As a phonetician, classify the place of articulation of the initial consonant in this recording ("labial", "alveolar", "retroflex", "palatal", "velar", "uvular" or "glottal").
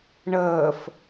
retroflex